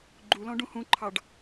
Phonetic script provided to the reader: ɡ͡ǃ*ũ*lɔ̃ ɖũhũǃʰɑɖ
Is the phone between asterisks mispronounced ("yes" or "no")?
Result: yes